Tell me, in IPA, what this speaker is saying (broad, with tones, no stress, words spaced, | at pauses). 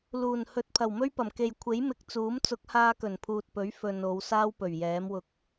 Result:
luː˨˩n hɵ˨˥t̚pʰɐ˨˩wmɵ˥ɥpɐ˨˩m ke˨jkʷʰe˨˥j mɪ˧k̚t͡suː˨˥m t͡sʊ˨˥k̚haː˧kɵ˨˩n pʰuː˨t̚pɵ˨˥ɥ fɵ˨n o˨˧wsaː˥wpɵ˨˩ɥ jɛː˨˥mwʊ˧k̚